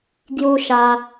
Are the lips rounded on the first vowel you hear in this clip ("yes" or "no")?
yes